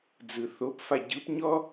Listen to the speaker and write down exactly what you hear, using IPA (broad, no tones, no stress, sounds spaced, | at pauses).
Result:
d͡z ɯ θ o p f a ɟ ɯ p ɲ ɔ